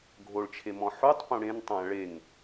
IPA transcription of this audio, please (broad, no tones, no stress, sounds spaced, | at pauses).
ɡʱ o ɭ t͡ʃʰ e m ɔ̃ ħ u tˤ p õ ɽ ẽ n tˤ ã ɭ e ŋ